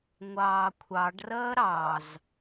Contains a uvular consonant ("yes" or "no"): no